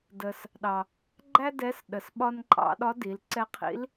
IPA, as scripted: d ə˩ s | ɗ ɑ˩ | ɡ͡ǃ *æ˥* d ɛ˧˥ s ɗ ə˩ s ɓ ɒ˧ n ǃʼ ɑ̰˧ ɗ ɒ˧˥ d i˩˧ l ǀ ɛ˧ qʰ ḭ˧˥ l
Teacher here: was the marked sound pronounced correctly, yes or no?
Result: yes